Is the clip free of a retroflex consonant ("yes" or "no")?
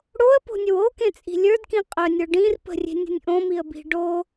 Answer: no